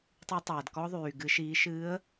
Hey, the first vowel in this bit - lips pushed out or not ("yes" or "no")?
yes